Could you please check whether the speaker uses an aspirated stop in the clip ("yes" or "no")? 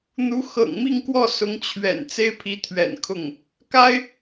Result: yes